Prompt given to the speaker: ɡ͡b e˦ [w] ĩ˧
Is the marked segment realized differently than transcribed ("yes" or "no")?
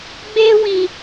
no